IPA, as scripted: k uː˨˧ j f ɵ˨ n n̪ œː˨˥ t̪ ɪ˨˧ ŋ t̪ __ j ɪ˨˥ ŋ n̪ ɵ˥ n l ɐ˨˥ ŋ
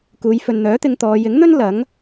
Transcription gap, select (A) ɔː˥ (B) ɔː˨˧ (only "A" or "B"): B